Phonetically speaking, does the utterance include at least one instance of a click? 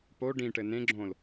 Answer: yes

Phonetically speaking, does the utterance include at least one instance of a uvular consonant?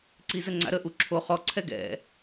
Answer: yes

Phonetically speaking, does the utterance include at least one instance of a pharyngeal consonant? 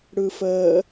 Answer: no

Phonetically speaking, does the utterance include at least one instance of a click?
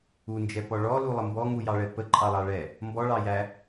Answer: yes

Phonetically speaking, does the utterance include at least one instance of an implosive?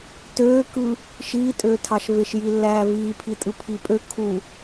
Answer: no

